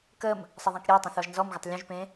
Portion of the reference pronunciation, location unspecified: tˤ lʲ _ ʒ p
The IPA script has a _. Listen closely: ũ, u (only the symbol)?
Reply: ũ